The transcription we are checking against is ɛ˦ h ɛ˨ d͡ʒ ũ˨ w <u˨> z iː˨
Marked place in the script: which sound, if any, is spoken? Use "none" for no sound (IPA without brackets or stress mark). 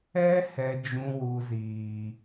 u˨